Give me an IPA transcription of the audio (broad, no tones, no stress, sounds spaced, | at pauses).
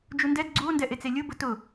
d͡ʒ u n d ɛ d ɡ͡ǀ u o̯ n d ɛ ʔ e t͡s e lʲ ʊ b ʊ t ʊ